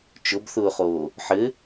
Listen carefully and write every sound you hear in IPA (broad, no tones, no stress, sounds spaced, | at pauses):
t͡ʃ ʊ b θ ʊː χ oː | ħ ɘ